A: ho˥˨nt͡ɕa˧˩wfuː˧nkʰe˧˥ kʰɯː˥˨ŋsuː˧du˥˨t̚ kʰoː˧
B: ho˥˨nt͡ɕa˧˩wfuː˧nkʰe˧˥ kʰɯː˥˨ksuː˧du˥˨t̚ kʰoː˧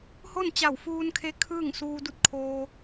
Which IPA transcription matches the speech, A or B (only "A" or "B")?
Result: A